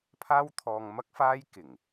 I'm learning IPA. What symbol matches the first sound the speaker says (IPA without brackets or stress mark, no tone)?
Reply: pʰ